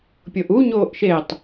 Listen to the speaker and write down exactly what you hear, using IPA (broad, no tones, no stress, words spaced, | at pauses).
pʲoʔu ɲoːʔʃetˤ